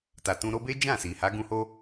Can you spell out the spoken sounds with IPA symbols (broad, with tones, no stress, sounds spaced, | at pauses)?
t a˨ t ũ˧ ɾ o˦ b e˦ d͡ʒ ã˦˨ s i˨ h a˨˦ ɡ ũ˧ h o˦